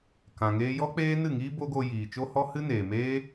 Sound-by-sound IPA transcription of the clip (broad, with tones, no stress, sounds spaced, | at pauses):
k ã˨ ŋ eː˧ j ɔ˦ k͡p eː˦ n ɨ˦˨ ŋ iː˦ b o˦ ɡ o˧ j iː˨ t͡ʃ o˦ h ɔ˦ h ɨ˦ n eː˨ m eː˦